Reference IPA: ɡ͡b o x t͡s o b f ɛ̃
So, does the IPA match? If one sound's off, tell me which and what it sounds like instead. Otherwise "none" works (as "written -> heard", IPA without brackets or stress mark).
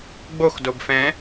t͡s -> d